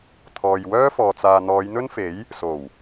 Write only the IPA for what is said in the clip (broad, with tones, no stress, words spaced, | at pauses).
t̪ʰɔː˨jwœː˥fɔː˨ t͡saː˨n̪ɔː˨˧jn̪ɵ˥nfe˨˥j | so˨˩w